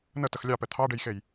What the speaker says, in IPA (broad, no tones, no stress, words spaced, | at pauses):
nətəx lʲɑpɛ t̪ʰɑɖejxej